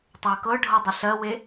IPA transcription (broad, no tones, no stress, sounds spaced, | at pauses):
tˤ ə˞ k ɤ ɖʱ ɤ dˤ ɪ ɬ ɜ w e